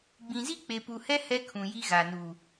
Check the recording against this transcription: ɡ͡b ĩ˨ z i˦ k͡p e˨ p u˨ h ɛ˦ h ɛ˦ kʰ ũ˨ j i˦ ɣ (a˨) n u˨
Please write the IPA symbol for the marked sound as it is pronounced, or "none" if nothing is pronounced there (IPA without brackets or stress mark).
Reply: a˨